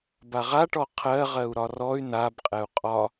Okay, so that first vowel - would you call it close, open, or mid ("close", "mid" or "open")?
open